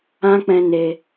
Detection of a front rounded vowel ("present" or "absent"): absent